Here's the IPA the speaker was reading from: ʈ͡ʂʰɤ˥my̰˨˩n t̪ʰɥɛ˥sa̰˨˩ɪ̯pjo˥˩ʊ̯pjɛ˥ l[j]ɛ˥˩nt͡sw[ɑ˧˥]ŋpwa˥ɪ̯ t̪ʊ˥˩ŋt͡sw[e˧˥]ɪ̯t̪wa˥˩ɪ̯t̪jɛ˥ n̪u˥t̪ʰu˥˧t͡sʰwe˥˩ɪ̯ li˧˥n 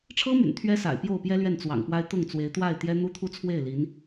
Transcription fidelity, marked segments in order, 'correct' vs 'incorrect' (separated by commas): incorrect, incorrect, correct